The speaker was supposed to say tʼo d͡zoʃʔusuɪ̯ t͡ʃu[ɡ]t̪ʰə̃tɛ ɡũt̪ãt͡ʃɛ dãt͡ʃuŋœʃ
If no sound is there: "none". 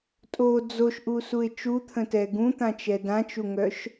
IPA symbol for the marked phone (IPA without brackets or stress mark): none